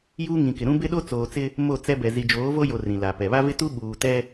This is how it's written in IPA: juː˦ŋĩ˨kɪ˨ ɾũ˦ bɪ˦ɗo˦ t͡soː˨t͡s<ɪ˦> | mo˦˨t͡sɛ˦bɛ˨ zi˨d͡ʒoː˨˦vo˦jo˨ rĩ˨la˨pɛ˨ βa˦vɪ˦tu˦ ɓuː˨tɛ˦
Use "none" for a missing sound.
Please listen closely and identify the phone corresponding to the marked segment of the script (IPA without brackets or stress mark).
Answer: ɪ˦